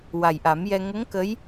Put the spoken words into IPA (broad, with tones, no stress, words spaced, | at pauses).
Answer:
wa˨˩jʔa˨˩˦mjɛ˧ ŋə˧˥ŋ kə˧˥j